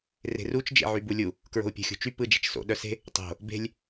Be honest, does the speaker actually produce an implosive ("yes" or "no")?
yes